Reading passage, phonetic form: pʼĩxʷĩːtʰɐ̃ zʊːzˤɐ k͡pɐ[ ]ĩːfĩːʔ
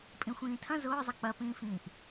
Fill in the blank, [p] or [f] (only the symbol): p